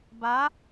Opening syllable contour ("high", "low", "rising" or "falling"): rising